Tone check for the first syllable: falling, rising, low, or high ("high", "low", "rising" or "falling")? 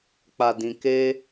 low